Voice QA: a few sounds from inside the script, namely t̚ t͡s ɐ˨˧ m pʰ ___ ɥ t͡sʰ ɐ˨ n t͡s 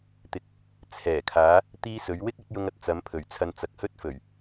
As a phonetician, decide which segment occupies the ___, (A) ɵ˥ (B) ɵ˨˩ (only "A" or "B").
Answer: B